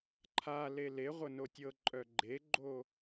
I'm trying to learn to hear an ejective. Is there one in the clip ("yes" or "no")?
yes